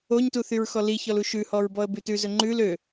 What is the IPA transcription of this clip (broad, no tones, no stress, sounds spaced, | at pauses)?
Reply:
o ɲ t u θ y ɹ x ɔ l i ç ɔ l u ʃ ʉ h ɔ ɹ b ɔ ə̯ b ʉ t ʉ z ɵ ŋ͡ǃ ʉ l ø